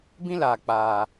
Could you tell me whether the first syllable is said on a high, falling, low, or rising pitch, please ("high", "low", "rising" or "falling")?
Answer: high